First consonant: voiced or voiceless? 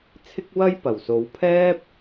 voiceless